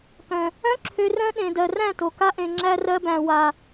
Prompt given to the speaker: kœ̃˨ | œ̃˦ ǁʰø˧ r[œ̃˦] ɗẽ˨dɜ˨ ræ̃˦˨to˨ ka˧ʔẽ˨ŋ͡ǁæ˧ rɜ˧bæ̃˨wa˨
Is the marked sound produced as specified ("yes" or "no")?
yes